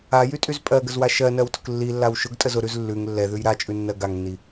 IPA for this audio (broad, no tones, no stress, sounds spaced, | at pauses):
a j y tʼ y z pʼ ɜ ɡ ə z w a ʃ ɜ n ɜ w t ʊ k lː i lː a w ʃ ʊ ɡ tʼ ə z ʊ ɾ ʉ z lː ʉ ŋ lː ɛ ð ʉ j ɾ a t͡ʃʼ ʉ nː ɜ ɡ a ŋ nː i